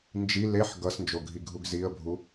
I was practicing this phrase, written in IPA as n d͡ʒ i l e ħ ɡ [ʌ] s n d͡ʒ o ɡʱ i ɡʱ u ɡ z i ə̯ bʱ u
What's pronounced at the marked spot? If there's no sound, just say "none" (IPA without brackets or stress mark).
ʌ